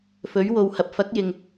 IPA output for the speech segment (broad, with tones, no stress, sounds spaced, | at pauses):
f ɵ˨˥ ɥ w o˨˧ w h ɐ˨ p̚ f ɐ˨˥ k̚ j ɪ˨ ŋ